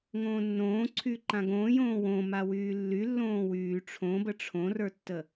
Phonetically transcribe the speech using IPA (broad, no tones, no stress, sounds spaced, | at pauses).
ŋ õː nː õː ǀʰ yː ǃ ã ɡ õː j õː w õ m a w yː lː y lː õː w yː ʈ͡ʂʰ õ b ə ʈ͡ʂʰ õ r ə˞ tː ə